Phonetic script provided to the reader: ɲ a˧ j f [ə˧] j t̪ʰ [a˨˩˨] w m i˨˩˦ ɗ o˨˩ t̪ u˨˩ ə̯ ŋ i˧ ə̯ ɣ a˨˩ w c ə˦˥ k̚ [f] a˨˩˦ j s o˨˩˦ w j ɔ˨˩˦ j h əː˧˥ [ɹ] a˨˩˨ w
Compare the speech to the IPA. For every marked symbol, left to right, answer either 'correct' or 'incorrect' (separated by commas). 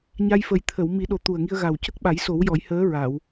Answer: incorrect, incorrect, incorrect, correct